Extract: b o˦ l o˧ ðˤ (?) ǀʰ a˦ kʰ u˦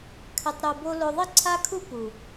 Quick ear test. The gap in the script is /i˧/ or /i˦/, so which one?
i˦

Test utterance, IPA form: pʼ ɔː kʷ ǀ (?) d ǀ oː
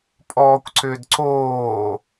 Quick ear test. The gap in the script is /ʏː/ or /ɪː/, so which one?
ʏː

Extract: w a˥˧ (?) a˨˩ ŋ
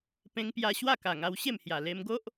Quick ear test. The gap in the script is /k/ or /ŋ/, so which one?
k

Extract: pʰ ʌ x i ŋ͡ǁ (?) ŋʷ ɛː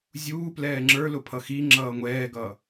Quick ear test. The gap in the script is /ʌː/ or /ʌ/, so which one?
ʌː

